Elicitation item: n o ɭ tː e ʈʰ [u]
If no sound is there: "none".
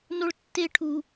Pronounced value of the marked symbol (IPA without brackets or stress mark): u